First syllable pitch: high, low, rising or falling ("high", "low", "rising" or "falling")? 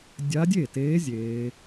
rising